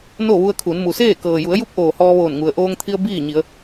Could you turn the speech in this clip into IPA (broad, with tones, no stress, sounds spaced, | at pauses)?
n o˥˨ ʋ u˧ ə̯ kʰ u˩˧ n m u˩ s eː˥˨ k ɤː˩ j u˩˧ ə̯ j u˧˥ p̚ ʔ oː˩ h ɔː˧ ʋ oː˧˩ n ŋ u˩ ə̯ ʔ oː˧ ŋ t̪ʰ i˧ ə̯ b iː˥˨ ɲ i˩˧ ə̯